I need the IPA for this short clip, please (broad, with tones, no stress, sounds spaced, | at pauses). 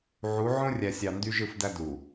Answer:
ʕ u˨˦ ʕ õ˦ rʲ æ˨ sʲ ɑ˨ n d y˦ ʒ ɯ˦˨ f d æ˦ d u˨